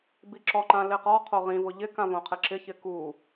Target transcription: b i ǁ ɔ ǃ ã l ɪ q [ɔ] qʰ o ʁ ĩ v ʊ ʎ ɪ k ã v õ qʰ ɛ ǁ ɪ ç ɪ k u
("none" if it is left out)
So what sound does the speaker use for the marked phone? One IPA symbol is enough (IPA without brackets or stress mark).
ɔ